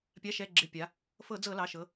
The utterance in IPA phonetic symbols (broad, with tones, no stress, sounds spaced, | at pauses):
pʲ a˩˧˩ ʃ ɛ˩˧˩ ɡ͡ǁ ɪ˩˧˩ pʲ a˩˧ | f ɤ˧˩˧ d͡z ɤ˧˩˧ l ɑ˩˧˩ ʃ ɤ˩˧